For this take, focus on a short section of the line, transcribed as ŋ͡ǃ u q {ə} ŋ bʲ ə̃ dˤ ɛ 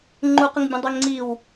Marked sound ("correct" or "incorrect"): correct